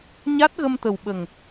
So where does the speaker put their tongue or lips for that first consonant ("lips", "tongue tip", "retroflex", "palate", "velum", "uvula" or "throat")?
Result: palate